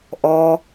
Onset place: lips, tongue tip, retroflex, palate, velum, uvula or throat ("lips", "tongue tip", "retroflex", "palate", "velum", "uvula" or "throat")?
throat